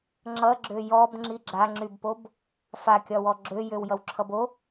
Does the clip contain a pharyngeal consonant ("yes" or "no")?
no